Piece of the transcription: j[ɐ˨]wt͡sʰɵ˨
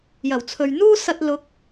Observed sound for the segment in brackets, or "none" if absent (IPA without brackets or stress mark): ɐ˨˩